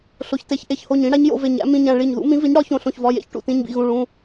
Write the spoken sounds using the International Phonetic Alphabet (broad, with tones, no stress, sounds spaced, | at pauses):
ɬ o˩˧˩ ç t e˩˥ ç ʔ e˩˧˩ ç h o˧˩ ɲ ĩ˩˥ ɽ æ˩˥ ɲ j o̰˩˧˩ v e˧˩ ɲ æ̰˩˥ m ĩ˩˧˩ ɲ æ̃˧˩ ɭ i˧˩ ɲ ð ṵ˩˥ m ĩ˩˥ v i˩˥ ɲ ɽ ɒ˩˥ ç õ˩˧˩ ɬ õ˧˩ ç v ɒ˩˧˩ j ḛ˩˥ ç ʈ ṵ˩˧˩ t ĩ˩˧˩ ɲ b ḭ˧˩ ɣ ũ˩˧˩ ɭ ũ˩˧˩